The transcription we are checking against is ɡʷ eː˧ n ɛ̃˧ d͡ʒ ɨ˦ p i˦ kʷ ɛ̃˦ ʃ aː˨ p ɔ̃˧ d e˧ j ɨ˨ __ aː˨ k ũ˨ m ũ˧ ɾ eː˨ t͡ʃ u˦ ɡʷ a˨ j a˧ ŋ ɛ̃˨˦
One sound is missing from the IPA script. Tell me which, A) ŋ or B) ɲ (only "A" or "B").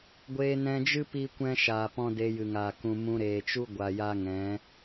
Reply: A